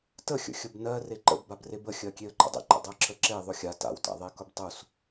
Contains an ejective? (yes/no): no